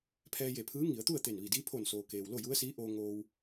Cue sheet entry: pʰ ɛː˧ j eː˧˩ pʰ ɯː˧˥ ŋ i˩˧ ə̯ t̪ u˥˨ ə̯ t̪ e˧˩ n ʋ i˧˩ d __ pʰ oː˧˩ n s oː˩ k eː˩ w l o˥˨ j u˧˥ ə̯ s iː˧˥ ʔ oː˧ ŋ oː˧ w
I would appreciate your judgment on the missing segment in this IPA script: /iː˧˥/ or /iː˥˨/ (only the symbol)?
iː˧˥